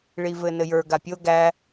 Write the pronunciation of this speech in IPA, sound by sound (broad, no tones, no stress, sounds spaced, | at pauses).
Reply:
ɭ i v ɘ n ɘ j ə˞ ɡ a pʲ o ɡ æ